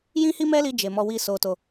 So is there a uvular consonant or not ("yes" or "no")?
no